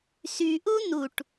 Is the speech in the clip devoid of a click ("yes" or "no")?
yes